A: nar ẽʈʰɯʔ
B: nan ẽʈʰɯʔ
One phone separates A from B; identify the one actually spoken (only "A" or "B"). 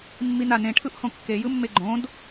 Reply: B